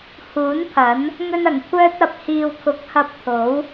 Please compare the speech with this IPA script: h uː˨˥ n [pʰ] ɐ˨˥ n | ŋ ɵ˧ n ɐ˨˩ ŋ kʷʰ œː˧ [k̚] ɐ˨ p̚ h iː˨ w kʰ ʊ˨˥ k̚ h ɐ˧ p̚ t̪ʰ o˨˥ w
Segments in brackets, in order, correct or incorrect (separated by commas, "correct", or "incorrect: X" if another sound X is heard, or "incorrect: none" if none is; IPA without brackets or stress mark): correct, incorrect: t̚